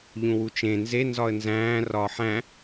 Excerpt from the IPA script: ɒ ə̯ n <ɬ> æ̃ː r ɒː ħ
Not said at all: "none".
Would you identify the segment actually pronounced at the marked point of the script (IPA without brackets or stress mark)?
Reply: z